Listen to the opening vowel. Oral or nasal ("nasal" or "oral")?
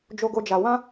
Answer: oral